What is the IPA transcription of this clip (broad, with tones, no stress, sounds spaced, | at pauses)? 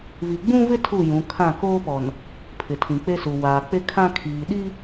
v i˨ ɡ͡b ũ˦ v ɪ˦ tʰ u˦˨ j ũ˨˦ kʰ ã˦˨ k oː˦ p ɔ˨ n | pʰ ɪ˨ tʰ ĩ˨ k͡p e˦ s u˨ w aː˨ k͡p e˦ kʰ ã˦ kʰ iː˨ ɗ i˦